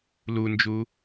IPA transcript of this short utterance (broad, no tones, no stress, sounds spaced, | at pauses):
l u n d͡ʒ u